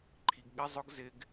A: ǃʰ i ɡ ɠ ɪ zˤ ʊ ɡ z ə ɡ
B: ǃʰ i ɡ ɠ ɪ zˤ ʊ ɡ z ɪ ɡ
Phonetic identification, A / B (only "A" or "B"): B